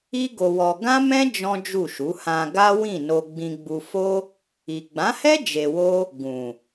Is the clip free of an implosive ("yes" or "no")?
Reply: yes